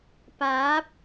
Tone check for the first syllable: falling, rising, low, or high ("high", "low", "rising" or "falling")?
rising